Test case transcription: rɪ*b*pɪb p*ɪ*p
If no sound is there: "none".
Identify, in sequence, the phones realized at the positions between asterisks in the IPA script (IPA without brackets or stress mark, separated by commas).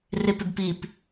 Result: none, i